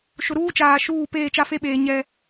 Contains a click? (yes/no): no